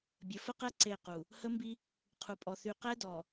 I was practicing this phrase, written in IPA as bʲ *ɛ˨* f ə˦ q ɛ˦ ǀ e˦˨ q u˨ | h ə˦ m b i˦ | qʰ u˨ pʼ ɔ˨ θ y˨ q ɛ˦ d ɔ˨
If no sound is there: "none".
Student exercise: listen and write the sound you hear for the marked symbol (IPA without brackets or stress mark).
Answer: ə˨